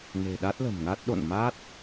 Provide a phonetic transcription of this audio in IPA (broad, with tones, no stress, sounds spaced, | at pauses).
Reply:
n e̤˨˩ ɗ a˦˥ t̚ l ə̤˨˩ m ŋ a˦˥ t̚ ɗ o̰˧˨ n m a˦˥ t̚